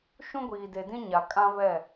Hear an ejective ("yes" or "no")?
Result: yes